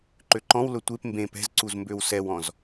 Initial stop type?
click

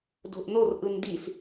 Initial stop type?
plain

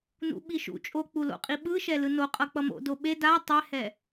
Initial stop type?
implosive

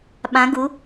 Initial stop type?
implosive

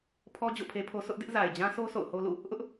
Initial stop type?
aspirated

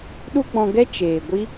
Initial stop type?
implosive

